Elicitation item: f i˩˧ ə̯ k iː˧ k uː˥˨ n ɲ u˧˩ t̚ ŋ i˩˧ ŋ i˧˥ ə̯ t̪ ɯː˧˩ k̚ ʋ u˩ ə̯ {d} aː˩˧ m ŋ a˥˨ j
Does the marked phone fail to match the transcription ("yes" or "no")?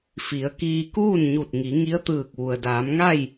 no